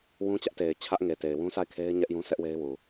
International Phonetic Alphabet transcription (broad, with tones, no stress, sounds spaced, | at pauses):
w ũ˦ t͡ɕ ä˦ ʔ t e˨ ɪ̯ t͡ɕʰ ä˦ ʔ ŋ e˨ t e˨ ɪ̯ w ũ˦ sʰ a˦˨ ɪ̯ kʰ e˦ ɪ̯ ɲ ɛ˦ ʔ j ũ˦ sʰ ɛ˦ ʔ w e˦ ɪ̯ w u˨